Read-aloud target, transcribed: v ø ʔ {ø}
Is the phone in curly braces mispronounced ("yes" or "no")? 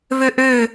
no